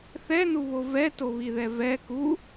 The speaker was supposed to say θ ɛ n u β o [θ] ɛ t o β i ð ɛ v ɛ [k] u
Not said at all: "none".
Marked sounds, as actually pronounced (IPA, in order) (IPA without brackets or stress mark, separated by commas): v, k